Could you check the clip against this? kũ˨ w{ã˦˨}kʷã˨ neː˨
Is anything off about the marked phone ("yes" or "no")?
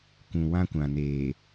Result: yes